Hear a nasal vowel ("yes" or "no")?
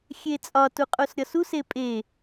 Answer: no